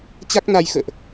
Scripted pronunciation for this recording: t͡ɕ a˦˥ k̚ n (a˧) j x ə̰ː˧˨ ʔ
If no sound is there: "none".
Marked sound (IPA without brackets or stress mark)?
a˧